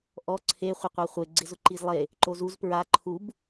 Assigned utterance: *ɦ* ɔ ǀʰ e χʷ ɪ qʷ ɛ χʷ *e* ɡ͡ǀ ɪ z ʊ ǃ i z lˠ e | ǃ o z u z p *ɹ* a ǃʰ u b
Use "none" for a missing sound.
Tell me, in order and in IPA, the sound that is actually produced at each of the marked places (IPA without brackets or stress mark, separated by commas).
ʔ, e, ɹ